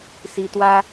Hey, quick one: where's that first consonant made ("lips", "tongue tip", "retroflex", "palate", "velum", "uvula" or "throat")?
tongue tip